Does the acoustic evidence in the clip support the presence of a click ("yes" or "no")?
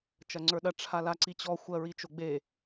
yes